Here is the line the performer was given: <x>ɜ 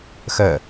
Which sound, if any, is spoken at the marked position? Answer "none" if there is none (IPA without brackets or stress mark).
x